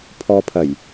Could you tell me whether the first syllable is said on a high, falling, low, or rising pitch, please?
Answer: low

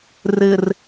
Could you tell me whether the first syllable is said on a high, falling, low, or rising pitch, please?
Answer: low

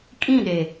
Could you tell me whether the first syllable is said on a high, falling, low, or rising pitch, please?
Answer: falling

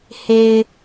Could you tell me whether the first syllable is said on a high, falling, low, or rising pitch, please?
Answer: low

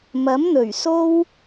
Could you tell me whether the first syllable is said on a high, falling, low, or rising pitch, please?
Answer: rising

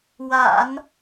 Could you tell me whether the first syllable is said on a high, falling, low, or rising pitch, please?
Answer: low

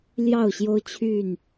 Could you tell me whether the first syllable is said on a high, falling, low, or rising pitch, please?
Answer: falling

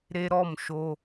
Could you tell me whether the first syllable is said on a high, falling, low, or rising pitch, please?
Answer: high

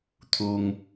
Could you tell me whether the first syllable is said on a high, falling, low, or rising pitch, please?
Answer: low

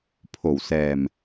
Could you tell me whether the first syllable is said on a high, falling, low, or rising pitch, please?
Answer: low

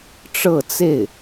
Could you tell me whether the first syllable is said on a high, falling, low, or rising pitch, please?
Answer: falling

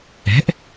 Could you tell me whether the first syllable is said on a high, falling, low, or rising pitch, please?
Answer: rising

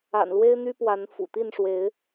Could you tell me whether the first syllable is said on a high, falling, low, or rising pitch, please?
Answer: low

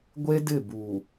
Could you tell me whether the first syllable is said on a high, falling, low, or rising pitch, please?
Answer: high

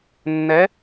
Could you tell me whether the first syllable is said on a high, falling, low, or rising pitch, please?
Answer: rising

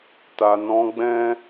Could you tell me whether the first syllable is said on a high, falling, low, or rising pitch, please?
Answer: low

